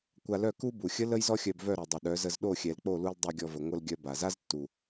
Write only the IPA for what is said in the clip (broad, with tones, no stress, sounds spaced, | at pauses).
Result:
kʷ a˧ l œ˦˨ k u˦ b u˨ xʲ ə˦ l ə˦ j z ɔ˦ xʲ œ˧ b v œ˦˨ ɾ o˨ dˤ ə˨ ɗ œ˨˦ z ə˧ z ɗ o˦˨ xʲ ɛ˨ l k͡p o˦˨ l u˧ l dˤ o˧ ɡʲ ɔ˧ v ə˨ ŋʷ ə˧ l ɡʲ œ˧ b a˨ z a˦ z tː u˨